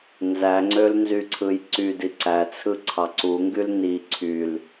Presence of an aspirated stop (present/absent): present